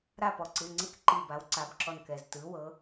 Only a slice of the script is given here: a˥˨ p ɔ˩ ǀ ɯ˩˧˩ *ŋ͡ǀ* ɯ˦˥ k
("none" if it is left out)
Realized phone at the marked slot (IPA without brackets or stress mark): ŋ͡ǀ